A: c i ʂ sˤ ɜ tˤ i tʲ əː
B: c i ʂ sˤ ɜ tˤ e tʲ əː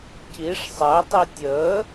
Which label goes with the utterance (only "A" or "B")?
A